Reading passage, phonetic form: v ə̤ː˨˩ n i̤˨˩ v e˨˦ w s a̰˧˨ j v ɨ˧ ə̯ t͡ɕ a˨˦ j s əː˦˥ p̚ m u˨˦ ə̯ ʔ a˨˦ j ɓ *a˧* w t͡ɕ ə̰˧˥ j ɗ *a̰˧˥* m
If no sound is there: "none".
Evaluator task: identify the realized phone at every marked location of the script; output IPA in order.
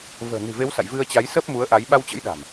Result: a˧, a̤˨˩

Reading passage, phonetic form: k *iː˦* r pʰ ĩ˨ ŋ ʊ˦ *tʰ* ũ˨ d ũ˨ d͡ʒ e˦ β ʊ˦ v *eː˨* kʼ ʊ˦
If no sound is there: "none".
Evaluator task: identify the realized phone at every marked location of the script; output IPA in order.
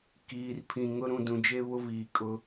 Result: iː˨, ɾ, iː˨

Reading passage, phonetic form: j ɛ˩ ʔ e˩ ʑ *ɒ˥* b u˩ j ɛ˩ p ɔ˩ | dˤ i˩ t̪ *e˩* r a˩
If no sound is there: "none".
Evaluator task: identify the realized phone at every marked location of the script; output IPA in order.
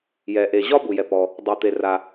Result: ɒ˥, e˩

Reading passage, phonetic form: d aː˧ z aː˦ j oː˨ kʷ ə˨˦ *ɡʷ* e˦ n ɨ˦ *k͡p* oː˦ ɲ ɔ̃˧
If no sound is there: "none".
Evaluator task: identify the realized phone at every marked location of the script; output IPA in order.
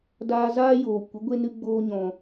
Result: ɡʷ, ɡ͡b

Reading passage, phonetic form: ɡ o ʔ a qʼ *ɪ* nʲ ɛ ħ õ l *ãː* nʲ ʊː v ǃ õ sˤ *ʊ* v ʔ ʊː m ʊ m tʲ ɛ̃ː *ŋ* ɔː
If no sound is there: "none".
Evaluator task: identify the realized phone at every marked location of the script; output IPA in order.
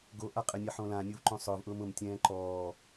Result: ɪ, ãː, ʊː, ǃ

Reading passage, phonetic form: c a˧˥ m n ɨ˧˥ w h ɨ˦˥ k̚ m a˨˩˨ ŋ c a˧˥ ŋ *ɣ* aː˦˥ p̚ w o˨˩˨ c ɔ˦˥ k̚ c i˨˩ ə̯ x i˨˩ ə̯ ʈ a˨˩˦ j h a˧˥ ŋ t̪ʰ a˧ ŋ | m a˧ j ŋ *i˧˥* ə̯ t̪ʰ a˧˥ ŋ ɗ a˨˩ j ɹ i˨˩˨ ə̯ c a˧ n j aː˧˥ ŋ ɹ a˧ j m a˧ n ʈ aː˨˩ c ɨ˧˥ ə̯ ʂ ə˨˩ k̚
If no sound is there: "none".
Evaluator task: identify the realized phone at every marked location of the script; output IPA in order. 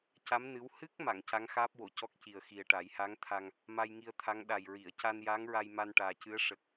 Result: x, i˧

